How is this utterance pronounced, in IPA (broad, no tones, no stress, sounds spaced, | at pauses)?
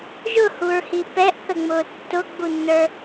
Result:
ʒ ʊ h u ɹ h i p ɛ ʔ θ ə ŋ͡m ʊː tː ʊ ɡ͡b u nː ə˞